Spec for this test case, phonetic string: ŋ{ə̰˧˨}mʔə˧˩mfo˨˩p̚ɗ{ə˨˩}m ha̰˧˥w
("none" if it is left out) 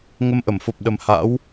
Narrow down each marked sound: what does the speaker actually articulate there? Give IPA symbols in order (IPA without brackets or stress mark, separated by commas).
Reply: ə˧, ə˨˩